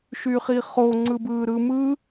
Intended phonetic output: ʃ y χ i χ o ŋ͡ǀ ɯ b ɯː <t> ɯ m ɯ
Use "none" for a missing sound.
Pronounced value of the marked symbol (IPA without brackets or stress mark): ɾ